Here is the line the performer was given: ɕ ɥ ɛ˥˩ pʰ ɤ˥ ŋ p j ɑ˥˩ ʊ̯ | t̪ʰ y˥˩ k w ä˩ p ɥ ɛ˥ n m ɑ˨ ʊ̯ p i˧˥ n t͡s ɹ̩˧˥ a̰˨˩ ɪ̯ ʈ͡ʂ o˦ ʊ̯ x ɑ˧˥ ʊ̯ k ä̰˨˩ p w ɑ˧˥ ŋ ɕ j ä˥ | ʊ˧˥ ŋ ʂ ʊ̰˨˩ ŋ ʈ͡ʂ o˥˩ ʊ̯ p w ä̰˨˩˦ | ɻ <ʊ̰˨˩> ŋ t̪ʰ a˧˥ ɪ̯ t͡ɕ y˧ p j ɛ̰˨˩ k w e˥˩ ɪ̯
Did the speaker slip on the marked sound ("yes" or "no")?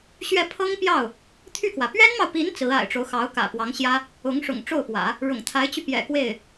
no